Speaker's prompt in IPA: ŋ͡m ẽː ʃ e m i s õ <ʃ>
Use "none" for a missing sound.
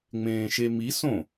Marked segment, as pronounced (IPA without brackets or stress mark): none